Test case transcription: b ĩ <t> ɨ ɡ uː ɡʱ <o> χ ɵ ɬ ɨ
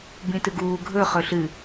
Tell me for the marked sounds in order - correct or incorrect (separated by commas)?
correct, incorrect